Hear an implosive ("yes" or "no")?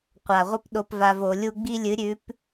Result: yes